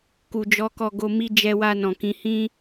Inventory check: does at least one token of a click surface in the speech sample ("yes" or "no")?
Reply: no